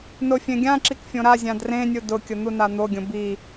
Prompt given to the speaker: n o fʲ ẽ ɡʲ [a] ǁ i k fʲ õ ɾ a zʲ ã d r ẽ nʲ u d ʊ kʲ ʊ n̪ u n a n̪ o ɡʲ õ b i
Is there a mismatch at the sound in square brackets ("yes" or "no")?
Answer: yes